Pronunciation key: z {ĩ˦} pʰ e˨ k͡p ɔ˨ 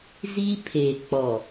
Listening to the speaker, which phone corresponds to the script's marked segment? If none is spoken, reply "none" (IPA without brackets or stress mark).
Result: i˦